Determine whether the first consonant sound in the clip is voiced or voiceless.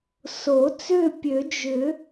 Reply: voiceless